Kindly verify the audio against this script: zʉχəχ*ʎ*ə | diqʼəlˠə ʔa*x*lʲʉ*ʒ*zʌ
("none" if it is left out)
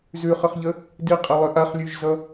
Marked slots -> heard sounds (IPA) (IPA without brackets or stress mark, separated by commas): ʎ, χ, ʒ